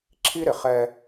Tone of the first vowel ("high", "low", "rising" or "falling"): high